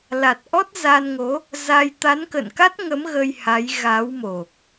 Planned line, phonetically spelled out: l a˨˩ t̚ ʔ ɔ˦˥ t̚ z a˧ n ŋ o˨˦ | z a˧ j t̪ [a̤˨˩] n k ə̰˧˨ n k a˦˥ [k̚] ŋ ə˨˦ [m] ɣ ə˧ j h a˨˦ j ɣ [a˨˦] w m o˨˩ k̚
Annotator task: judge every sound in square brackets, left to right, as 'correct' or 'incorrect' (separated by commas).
incorrect, incorrect, correct, correct